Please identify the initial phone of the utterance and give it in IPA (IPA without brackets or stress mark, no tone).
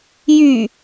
j